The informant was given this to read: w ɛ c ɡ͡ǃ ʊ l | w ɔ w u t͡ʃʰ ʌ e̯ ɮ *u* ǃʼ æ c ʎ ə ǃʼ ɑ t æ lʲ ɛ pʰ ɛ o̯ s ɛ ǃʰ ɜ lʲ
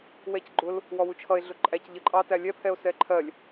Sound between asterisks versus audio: incorrect: ʊ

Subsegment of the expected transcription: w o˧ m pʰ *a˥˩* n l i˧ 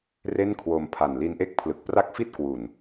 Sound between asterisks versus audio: incorrect: a˨˩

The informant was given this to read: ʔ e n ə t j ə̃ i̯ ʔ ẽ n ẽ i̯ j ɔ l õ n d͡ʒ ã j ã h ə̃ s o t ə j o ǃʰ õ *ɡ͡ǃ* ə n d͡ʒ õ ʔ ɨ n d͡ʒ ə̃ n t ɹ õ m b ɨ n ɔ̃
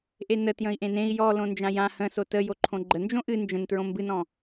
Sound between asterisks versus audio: correct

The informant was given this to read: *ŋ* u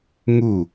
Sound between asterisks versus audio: correct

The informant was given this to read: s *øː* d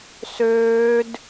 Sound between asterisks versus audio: correct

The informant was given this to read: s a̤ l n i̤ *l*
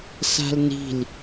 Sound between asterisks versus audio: correct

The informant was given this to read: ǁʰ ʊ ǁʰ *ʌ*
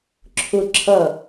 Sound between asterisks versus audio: correct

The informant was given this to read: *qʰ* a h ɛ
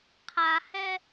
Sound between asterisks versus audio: correct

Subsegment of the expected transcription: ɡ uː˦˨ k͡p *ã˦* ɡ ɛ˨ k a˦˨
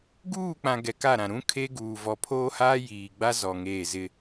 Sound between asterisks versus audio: incorrect: ã˨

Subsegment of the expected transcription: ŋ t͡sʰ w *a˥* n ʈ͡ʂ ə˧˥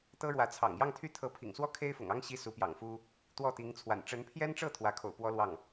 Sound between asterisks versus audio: incorrect: a̰˨˩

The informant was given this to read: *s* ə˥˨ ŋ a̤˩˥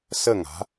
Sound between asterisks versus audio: correct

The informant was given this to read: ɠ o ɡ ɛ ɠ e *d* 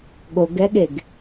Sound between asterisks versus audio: incorrect: ɡ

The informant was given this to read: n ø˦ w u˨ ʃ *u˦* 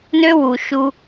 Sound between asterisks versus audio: correct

